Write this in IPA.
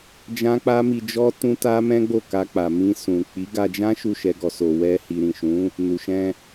d͡ʒ ã˦ k͡p a˦ m i˧ d͡ʒ ɔ˦ t ũ˦ t a˦ m ɛ̃˦ ɡ͡b o˦˨ k a˧ k͡p a˨ m ĩ˧ s ũ˨ k͡p i˨˦ ɡ a˧ d͡ʒ ã˦ ʃ u˦˨ ʃ ɛ˧ ɡ ɔ˨ s o˨ w ɛ˧ h i˨ ɾ ĩ˨ ʃ ũ˨˦ | n u˨ ʃ ɛ̃˧

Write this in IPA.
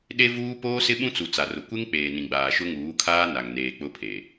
ɗ e˦ v uː˦ p oː˦ s ɪ˦ ɓ ũ˦ t͡s u˨ t͡s a˨ r ʊ˨ kʷ e˦ ŋ k͡p eː˨ n ĩ˨ ɡ͡b aː˨ ʃ ʊ˦ ŋ uː˨˦ kʰ aː˦ n a˨ ŋ n eː˨ k͡p ʊ˦ pʰ e˨

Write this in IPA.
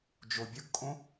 d͡ʒ o bʲ ʊ ɡ kʼ õ

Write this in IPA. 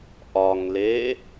ʔ ɒ ŋ l e

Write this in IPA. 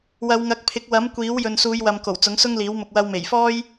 w ɐ˨˧ w ŋ ɐ˨˥ k̚ pʰ ɪ˨˥ k̚ w ɐ˨˥ m kʷ iː˨˥ w j ɵ˨ n s uː˨˧ j w ɐ˨ m k o˨˩ w t͡s ʊ˨˥ ŋ s ʊ˥ ŋ l iː˨˥ w m ʊ˨ k̚ w ɐ˧ w m e˨˩ j f ɔː˥ j

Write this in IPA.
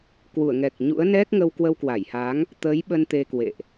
k w u˧˩ ə̯ ŋ ɛ˨˩ k̚ ɲ ṵ˧˥ ə̯ n ɛ˦˥ k̚ ŋ ə˧ w k w ə˧ w k w a˧˩ j h a˨˦ ŋ | t̪ əː˨˦ j ɓ ə˧ n t̪ e˧ k w ḛ˧˨ ʔ

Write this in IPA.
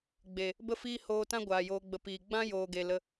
ɡ͡b e˨ | b ə˦ f iː˦ h oː˧ t ã˦ ɡʷ aː˨ j oː˧ ɡ͡b ə˧ p iː˨ ɡ͡b ã˦ j oː˨ ɡ e˨ l ə˧

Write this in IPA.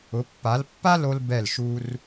ʊ˩˧ pː a˩˧ l pː a˥ l o˧ l b ɛ˧˩ l ʃ u˧ r

